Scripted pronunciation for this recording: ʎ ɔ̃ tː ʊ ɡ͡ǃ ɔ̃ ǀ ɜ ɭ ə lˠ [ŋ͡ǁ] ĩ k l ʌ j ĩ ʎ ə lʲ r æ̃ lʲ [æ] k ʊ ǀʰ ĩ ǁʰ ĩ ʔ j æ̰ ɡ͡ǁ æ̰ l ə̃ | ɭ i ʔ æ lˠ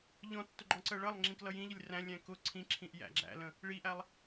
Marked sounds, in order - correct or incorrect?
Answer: correct, incorrect

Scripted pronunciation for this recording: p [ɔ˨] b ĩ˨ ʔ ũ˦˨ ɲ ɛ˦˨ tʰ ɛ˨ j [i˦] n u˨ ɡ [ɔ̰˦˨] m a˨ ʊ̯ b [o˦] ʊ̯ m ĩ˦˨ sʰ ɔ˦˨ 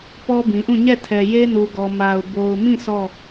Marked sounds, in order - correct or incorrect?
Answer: incorrect, incorrect, incorrect, incorrect

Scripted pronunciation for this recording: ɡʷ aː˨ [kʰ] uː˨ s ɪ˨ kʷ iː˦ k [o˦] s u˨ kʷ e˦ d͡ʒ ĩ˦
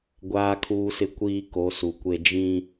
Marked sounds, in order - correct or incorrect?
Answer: correct, incorrect

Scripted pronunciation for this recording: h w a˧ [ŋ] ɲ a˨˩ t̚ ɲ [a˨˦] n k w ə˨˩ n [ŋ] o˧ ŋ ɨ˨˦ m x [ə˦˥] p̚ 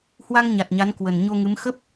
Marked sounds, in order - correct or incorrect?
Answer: correct, correct, incorrect, correct

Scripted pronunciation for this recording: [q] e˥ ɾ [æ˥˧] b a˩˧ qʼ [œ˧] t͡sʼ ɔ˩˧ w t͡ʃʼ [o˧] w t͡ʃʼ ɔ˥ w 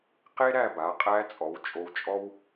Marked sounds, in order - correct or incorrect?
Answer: correct, correct, incorrect, correct

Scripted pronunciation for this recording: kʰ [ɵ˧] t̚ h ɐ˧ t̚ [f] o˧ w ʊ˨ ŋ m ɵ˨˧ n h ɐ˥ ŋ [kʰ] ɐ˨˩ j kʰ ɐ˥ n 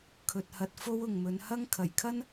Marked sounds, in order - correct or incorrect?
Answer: incorrect, correct, correct

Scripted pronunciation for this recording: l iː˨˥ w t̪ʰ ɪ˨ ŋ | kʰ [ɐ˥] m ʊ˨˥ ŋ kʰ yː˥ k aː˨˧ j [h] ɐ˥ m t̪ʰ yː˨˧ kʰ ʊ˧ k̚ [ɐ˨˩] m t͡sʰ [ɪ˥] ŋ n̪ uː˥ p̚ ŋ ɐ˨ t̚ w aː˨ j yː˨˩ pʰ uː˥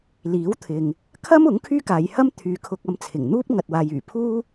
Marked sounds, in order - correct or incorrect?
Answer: correct, correct, incorrect, incorrect

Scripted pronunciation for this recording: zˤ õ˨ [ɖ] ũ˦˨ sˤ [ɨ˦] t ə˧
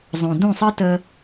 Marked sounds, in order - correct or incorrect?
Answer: incorrect, correct

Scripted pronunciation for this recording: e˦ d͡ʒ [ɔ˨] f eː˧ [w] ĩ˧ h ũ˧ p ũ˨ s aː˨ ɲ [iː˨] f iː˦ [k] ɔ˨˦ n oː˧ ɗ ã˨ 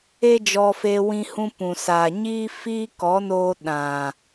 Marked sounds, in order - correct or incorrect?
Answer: incorrect, correct, incorrect, correct

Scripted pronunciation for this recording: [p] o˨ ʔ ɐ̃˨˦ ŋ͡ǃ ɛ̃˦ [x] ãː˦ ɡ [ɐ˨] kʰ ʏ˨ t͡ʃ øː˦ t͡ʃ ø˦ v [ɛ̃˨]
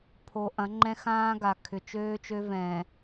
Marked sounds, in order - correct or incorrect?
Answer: incorrect, correct, incorrect, correct

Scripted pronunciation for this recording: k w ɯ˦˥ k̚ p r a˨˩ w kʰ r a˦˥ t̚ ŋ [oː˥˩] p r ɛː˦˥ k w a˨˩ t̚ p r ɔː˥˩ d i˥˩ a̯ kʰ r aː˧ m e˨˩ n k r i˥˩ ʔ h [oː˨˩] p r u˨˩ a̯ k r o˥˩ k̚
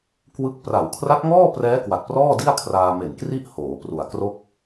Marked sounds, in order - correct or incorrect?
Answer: incorrect, incorrect

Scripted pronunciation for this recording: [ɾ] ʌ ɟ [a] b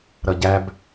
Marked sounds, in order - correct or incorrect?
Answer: correct, incorrect

